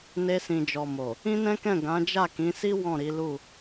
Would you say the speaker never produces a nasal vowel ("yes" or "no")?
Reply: no